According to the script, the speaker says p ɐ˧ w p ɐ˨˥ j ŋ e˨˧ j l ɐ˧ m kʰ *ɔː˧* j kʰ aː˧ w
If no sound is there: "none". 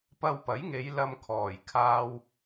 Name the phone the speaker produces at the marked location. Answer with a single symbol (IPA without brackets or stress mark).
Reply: ɔː˨˩